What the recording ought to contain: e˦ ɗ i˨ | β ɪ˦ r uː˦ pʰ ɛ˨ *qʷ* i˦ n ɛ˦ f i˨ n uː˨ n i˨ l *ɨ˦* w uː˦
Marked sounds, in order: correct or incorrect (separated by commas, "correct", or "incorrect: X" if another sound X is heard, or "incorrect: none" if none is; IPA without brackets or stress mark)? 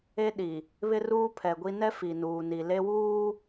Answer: incorrect: ɡʷ, incorrect: e˦